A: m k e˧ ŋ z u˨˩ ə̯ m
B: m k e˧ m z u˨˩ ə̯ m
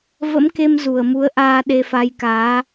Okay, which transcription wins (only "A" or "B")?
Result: B